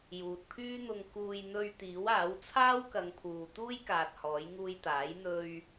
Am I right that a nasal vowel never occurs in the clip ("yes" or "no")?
yes